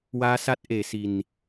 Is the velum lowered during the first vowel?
no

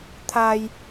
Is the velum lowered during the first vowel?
no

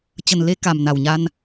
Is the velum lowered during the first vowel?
no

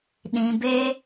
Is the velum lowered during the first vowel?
yes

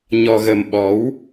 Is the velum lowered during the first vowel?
no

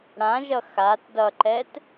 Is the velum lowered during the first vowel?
yes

